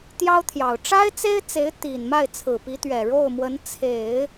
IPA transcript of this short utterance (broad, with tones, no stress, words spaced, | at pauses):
t̪jɑ˥ʊ̯t̪ʰjɑ˨˩ʊ̯ ʈ͡ʂa˥ɪ̯t͡se˥ɪ̯t͡se˧˥ɪ̯ t̪i˨˩nma˥˩ɪ̯t͡sʰɹ̩˨˩ pi˧˥t̪ɥɛ˨˩ ɻo˥˩ʊ̯mwə˧˥n t͡sʰe˨˩˦ɪ̯